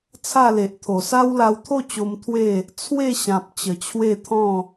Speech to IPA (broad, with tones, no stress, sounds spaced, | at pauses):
t͡sʰ a˥˧ l e˨ ʔ t̪ʰ o˨˩ s a˦ w l a˧ w t̪ʰ o˥˧ t͡ɕ o˧ m t̪ʰ w e˥˧ | t͡sʰ w e˥˧ ɕ ã˨ p̚ t͡ɕ ə˨˩ t͡ɕʰ w e˥˧ t̪ʰ ɔ̃˥˧